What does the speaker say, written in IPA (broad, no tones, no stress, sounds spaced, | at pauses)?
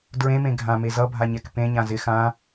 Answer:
d ɹ ẽ m ẽ ɡʱ ã m e z ʌ bʱ a ɲ ɛ k p ẽ ɲ ã z ɪ x ã